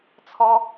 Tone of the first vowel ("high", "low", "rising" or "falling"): high